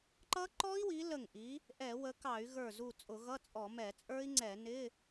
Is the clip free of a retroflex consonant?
yes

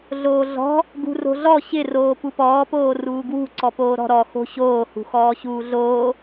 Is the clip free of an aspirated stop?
yes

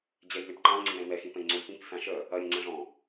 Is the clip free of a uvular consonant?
yes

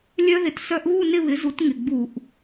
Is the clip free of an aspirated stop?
yes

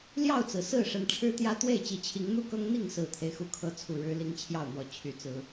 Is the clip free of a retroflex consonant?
no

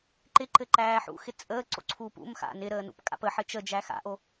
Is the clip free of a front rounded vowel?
yes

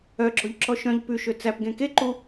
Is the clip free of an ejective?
yes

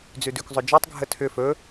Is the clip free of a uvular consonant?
yes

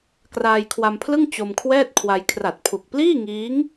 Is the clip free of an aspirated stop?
no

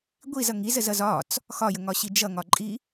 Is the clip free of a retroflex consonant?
yes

